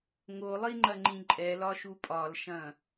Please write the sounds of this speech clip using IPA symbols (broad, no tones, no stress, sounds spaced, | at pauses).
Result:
ŋ o lˠ i ŋ͡ǃ ɐ ŋ͡ǃ ĩ ǃʼ ɛ l ɒ ʃ u pʼ ɒ l ʃ ɐ̃